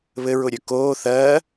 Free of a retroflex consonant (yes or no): yes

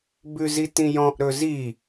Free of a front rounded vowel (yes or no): yes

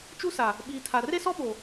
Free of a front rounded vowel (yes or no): yes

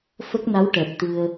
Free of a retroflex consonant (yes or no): no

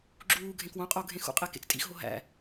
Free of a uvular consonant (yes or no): no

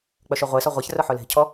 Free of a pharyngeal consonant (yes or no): no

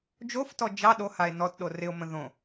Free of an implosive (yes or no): no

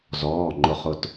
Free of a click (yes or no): no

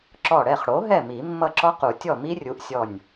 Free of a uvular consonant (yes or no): no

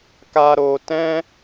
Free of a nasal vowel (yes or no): no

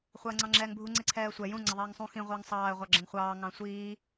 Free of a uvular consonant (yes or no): no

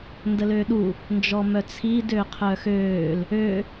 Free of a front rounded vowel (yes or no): no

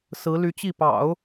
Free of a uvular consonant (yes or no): yes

